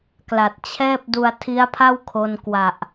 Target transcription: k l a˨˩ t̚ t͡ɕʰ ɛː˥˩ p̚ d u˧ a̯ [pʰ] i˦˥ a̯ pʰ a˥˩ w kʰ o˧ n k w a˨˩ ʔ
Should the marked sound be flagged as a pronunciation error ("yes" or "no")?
yes